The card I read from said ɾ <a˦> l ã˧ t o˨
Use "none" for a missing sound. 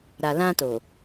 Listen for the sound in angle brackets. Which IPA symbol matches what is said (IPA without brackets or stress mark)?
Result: a˨